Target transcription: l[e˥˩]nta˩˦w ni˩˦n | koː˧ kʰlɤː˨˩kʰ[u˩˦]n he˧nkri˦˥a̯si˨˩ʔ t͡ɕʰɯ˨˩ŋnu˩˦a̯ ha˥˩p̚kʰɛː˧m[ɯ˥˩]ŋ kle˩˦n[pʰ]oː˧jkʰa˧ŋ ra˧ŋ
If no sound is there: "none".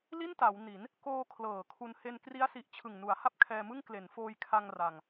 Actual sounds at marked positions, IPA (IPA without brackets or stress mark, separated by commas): i˥˩, u˧, ɯ˥˩, f